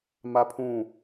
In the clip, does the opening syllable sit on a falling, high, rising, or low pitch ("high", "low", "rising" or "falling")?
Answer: high